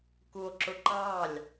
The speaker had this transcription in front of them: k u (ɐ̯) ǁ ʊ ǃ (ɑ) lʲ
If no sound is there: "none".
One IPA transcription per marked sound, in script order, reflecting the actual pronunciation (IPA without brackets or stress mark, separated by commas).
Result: o̯, ɑ